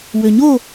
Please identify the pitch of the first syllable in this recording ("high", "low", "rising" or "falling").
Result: low